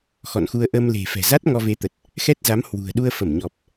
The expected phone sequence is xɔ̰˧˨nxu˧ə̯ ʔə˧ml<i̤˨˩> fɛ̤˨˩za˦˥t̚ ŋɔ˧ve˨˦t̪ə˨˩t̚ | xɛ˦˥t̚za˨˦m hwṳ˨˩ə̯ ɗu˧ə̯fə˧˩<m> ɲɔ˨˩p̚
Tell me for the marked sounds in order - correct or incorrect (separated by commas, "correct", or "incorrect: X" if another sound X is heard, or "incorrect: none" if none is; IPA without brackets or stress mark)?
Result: incorrect: e̤˨˩, correct